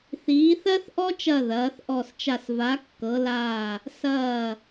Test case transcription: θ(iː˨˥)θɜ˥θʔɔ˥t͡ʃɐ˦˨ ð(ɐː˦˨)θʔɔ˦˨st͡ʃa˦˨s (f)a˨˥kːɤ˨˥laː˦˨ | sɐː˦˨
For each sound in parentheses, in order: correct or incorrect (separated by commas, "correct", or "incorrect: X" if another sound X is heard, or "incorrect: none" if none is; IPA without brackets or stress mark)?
correct, incorrect: ɐː˨˥, incorrect: v